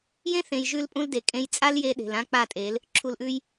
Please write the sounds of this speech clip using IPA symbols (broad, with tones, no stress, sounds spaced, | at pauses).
j ẽ˦ θ ẽ˨ j ʒ ʉ˧ l pʼ ũ˦ l d e˨ kʼ ẽ˧ j t͡sʼ a˦ l j e˧ ɗ e̤˨ l ã˦ k͡p a˦˨ tʼ e˨˦ l | ǁʰ u˨ l ʔ ʉ˧ j